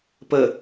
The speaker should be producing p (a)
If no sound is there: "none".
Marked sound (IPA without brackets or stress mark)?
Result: ə